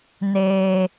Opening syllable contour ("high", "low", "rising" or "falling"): low